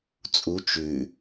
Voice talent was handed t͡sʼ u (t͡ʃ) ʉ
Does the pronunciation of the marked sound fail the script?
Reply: no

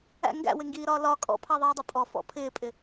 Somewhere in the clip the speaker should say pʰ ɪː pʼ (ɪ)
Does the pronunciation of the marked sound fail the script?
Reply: no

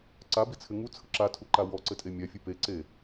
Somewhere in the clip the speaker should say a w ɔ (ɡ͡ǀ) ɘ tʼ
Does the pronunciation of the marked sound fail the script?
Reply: yes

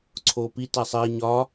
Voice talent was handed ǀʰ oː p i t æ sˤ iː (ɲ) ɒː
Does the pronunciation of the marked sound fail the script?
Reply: no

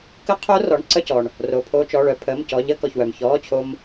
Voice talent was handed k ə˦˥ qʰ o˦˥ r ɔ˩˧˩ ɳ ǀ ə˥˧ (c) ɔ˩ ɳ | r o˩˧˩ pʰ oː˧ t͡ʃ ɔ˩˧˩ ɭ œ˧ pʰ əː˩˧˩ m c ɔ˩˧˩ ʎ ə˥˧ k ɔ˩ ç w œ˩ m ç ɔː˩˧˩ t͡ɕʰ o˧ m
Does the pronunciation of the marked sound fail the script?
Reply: no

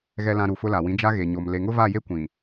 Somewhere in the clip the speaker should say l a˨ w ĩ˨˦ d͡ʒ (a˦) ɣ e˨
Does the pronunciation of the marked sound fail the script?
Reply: no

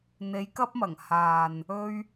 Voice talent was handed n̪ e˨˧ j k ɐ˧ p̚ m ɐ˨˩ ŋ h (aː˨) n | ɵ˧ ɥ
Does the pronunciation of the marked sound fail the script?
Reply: no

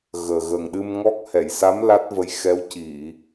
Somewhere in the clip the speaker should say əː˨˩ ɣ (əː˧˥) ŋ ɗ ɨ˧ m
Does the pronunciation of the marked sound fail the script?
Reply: yes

